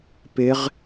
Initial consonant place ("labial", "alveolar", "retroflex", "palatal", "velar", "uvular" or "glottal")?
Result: labial